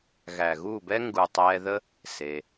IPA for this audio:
ɣæ˨ɣu˦˨bɛ˦ ŋɡu˨tˤɛː˧ðə˦ | seː˧

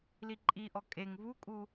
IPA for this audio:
liǃʼiʔɔ kʼeŋ vukʼu

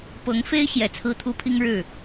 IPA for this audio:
pɤ˧˥ŋfe˥ɪ̯ ɕjɛ˨˩t͡sʰɹ̩˥t̪ʰu˥pʰi˥ŋ ɻɻ̩˥˩

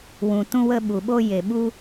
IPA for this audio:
wũ˨ tũ˧wə˧ ɓu˨ɓo˧ je˨ɓu˧

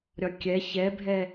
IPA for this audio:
ɾʲɒkʲɛ çɛbʱɛ

